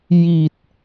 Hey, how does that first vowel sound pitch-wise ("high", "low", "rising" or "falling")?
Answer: low